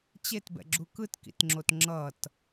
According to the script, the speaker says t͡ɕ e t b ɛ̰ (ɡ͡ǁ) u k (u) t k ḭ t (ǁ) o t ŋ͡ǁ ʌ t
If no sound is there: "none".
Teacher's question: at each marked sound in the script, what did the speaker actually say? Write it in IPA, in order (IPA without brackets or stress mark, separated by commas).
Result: ɡ͡ǁ, ɯ, ŋ͡ǁ